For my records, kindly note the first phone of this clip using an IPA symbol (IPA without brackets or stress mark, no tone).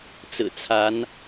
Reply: t͡s